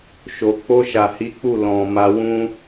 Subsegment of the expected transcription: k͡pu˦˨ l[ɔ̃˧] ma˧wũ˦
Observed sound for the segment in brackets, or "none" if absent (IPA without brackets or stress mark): ɔ̃˨